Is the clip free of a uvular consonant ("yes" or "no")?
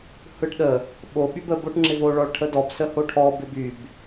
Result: yes